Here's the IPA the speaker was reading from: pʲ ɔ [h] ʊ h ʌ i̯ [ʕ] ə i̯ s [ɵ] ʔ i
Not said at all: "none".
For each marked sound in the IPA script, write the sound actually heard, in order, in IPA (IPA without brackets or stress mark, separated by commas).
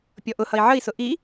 ʔ, ʕ, ʊ